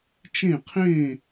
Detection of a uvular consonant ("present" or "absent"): present